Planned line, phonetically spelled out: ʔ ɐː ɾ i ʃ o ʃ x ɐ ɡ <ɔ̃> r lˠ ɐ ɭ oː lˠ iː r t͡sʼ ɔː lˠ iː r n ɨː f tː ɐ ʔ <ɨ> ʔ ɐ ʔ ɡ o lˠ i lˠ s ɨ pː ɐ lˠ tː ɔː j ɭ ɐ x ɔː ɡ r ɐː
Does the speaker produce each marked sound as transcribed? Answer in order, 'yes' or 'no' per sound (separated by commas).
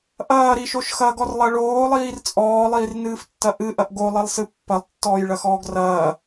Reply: no, yes